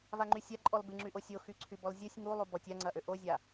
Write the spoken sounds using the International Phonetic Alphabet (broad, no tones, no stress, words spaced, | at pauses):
vaŋ͡ǃysʲa ǃʼɔlbɪŋ͡ǁyʔo sʲoxyǀʰy bɔlzʲosʲ ŋu lˠubɔtʲ aŋ͡ǀɐʔø ʔozʲa